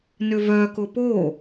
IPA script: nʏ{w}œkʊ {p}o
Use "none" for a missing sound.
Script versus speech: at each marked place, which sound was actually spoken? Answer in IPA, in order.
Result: v, p

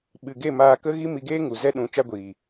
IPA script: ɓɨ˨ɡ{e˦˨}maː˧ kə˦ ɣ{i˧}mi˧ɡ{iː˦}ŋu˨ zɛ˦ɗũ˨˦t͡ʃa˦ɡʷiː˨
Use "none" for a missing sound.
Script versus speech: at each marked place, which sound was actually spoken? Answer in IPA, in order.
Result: e˦˨, i˦, eː˦

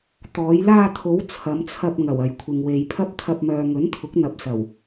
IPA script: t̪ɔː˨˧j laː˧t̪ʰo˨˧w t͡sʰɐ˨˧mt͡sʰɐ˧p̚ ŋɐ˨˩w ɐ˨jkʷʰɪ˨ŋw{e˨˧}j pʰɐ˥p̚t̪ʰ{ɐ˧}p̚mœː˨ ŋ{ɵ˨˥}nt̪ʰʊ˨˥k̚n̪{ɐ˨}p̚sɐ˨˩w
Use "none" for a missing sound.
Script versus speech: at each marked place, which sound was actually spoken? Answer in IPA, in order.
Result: e˨, ɐ˧, ɵ˨˥, ɐ˨

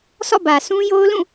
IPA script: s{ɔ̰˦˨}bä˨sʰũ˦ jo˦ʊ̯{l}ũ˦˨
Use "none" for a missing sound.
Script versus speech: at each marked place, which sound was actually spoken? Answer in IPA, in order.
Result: ɔ̰˦˨, l

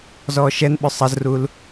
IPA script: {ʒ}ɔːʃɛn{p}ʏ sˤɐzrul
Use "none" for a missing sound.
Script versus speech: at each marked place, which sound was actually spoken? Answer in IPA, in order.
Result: z, ɓ

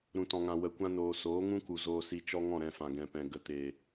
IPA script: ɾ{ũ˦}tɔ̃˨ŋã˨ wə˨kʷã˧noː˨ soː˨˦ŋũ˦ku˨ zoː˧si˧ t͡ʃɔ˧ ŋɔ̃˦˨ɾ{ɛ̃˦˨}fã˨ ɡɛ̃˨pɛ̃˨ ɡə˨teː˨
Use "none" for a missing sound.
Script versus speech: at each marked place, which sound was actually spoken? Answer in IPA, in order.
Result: ũ˨, ɛ̃˦˨

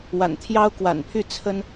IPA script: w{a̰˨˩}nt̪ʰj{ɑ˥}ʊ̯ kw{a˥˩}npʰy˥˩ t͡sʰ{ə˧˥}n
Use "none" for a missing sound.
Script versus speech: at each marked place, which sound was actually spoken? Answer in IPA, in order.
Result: a̰˨˩, ɑ˥, a̰˨˩, ə˥

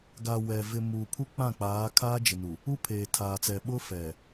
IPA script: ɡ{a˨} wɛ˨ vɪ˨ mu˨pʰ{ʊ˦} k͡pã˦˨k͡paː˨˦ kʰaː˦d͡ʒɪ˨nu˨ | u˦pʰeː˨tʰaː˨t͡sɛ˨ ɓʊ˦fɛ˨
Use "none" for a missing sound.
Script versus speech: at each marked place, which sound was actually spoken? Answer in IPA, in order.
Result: a˨, u˦

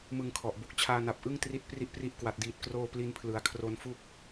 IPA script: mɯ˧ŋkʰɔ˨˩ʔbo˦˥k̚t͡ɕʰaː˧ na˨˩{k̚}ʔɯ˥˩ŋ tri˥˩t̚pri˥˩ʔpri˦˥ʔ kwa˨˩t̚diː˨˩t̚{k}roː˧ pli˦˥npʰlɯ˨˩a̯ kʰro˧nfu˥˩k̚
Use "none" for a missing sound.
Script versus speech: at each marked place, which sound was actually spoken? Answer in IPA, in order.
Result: p̚, k

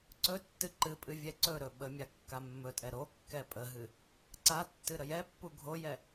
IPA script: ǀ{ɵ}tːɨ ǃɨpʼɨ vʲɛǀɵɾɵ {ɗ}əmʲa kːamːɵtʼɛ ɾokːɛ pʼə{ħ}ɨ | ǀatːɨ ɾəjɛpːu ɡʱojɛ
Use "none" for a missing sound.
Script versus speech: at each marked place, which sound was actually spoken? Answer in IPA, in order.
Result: ɵ, ɓ, ɦ

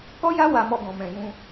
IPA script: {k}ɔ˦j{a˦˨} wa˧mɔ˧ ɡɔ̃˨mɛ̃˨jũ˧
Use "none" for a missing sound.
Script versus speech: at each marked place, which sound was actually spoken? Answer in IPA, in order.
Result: k, a˦

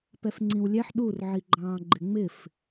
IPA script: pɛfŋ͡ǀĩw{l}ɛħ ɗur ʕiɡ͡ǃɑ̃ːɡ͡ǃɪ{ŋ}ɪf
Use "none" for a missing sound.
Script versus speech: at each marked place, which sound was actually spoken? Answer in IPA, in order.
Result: lʲ, ŋ͡m

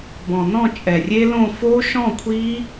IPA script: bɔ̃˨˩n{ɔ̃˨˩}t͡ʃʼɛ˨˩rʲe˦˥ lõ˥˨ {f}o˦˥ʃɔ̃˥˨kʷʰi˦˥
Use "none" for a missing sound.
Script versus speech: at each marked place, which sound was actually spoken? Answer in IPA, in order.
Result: ɔ̃˥˨, f

